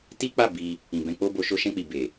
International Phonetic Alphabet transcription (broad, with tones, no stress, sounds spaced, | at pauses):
t i˦ k͡p a˦˨ b i˧ | ĩ˨ b ɛ̃˧ k͡p o˦ b o˧ ʃ o˧ ʃ ɛ̃˧ k͡p i˨ b e˨